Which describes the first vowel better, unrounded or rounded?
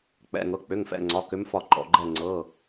unrounded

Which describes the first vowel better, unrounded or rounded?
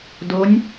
rounded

